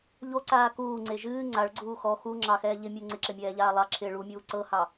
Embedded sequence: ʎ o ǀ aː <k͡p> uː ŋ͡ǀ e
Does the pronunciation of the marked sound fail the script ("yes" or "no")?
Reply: yes